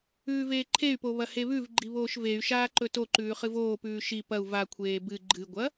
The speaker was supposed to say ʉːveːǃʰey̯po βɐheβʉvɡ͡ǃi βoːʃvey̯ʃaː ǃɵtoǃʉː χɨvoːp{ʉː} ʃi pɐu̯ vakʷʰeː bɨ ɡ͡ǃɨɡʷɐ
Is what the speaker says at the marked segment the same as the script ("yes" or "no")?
yes